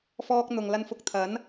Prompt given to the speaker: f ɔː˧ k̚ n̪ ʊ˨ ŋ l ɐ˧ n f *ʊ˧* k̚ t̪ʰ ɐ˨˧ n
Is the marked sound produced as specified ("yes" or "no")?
yes